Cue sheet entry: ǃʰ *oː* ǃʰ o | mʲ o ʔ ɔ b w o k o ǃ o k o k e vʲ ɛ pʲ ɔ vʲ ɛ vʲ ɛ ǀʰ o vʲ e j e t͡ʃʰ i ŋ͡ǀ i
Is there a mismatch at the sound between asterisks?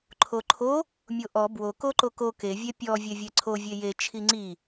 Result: yes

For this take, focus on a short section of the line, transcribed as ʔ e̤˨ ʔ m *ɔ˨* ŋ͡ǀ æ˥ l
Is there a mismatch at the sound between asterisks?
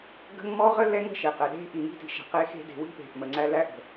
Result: yes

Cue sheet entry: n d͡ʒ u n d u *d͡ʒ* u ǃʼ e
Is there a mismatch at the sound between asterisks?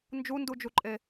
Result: no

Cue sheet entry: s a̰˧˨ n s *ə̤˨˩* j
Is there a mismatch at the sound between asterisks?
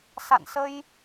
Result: yes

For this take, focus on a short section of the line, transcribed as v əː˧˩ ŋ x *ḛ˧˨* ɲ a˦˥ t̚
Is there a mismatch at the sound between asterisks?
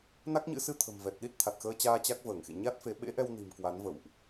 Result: no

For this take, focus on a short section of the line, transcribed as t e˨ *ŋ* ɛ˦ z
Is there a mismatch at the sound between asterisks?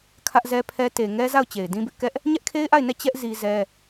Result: no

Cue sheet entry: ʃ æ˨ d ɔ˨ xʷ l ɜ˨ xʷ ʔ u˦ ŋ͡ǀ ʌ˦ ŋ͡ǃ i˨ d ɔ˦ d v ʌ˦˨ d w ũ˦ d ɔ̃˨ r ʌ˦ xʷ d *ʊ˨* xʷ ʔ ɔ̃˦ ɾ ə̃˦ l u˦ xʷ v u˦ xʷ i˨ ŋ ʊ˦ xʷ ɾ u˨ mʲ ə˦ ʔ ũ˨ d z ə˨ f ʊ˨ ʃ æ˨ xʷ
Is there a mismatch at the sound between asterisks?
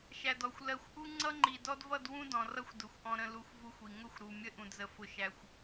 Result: no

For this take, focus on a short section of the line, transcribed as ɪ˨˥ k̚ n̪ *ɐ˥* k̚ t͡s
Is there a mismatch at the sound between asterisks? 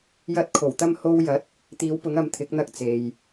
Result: no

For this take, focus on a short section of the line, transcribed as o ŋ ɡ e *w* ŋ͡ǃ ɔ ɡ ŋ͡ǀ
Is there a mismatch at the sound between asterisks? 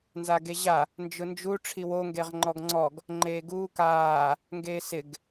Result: yes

